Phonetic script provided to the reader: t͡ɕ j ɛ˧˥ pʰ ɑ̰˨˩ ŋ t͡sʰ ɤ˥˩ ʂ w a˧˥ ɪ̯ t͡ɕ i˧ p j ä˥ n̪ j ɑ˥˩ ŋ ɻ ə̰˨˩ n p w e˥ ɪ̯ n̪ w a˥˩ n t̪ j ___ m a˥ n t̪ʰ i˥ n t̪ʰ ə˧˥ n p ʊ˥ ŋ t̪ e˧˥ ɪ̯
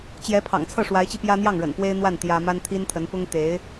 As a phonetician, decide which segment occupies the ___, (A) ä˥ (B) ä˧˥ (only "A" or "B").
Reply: A